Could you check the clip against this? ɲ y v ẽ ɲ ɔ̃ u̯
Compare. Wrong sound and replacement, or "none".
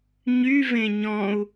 none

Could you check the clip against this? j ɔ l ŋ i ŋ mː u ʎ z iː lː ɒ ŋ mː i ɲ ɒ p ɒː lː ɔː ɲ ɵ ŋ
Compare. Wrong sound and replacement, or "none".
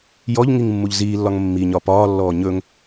l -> ʎ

